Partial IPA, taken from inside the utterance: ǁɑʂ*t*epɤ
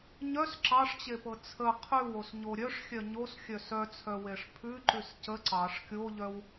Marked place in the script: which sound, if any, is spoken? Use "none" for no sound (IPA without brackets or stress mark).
t͡ɕ